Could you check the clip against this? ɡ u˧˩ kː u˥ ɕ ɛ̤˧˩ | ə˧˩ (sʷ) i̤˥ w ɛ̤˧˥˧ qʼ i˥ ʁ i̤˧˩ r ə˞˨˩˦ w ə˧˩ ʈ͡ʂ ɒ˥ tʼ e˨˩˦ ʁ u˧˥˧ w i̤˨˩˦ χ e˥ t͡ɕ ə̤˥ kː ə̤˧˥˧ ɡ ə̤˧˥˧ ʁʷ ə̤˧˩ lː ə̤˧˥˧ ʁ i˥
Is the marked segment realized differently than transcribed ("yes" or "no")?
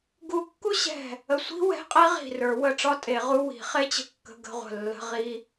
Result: no